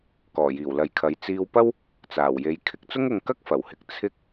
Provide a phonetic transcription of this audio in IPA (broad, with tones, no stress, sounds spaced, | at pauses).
k ɔː˨˩ j iː˨˩ w l ɐ˨ j kʰ ɐ˨˧ j t͡s iː˧ w p ɐ˥ w | t͡s aː˨˩ w j e˨˧ j kʰ ɪ˧ k̚ t͡s ʊ˥ ŋ ʊ˧ ŋ k ɐ˥ k̚ f ɐ˨˩ w h ɪ˨ k̚ t͡sʰ ɪ˥ k̚